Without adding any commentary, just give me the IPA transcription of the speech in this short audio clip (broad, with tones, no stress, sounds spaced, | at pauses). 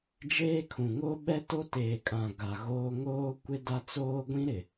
d͡ʒ eː˦ kʰ ũ˨ ŋ o˦ ɓ ɛ˦ t o˦ t eː˨ kʼ ã˨ ɡ a˨ ɣ oː˦ ŋ oː˦ kʷ ɪ˦ d a˦ t͡s oː˦ ɡʷ ĩ˦ ɾ ɪ˨